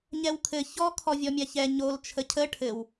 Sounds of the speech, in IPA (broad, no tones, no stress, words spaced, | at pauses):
ɲɛwkʰɘ çɔ kʰɔvʲɔmʲaçɛ ɲol t͡ʃʰəcʰə ʈʰɘw